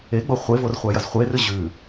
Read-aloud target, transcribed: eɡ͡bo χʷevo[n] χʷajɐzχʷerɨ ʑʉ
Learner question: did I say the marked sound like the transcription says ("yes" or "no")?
no